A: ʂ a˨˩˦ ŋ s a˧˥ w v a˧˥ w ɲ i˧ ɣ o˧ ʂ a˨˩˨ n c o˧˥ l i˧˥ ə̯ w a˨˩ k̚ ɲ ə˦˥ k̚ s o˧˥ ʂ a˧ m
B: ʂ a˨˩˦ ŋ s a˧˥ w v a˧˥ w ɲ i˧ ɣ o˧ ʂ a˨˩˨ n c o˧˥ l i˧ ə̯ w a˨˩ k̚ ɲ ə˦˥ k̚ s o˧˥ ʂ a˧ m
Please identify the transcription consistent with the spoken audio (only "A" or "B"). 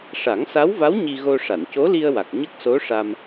B